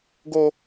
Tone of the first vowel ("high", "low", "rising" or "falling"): high